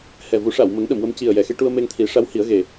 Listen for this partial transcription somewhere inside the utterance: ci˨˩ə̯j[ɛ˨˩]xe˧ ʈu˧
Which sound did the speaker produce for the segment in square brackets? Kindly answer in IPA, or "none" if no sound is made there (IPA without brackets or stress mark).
ɛ˨˩